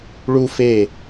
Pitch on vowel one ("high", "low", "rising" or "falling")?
high